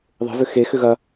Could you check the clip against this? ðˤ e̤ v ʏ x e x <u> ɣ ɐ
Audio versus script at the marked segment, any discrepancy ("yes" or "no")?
yes